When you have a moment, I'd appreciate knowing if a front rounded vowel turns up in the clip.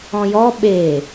no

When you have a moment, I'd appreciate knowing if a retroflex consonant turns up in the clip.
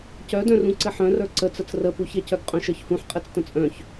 no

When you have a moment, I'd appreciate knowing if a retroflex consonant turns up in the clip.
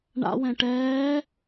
yes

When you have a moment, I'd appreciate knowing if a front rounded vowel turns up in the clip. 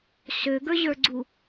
yes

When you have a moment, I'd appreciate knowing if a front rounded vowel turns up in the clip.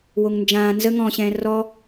no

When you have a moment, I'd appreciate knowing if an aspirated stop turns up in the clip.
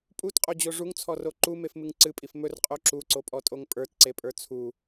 yes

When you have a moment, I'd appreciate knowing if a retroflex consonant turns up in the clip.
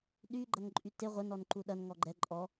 no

